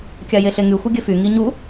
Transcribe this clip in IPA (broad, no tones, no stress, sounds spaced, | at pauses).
kʲ a j e ɬ e ŋ y xʷ ɘ ɡʲ ɘ f y ŋ i ɲ u